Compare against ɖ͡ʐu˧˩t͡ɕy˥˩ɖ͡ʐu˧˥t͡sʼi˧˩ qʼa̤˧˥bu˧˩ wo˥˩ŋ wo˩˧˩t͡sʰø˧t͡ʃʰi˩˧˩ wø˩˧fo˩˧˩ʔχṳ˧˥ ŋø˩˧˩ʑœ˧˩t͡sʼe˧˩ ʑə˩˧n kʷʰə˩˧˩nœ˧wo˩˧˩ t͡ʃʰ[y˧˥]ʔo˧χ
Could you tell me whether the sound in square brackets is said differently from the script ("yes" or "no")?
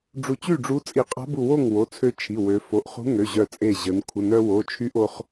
no